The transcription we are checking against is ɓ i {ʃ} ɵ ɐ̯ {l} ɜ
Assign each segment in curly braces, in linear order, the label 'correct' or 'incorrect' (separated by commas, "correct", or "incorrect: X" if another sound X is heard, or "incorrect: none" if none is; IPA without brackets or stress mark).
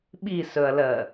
incorrect: s, correct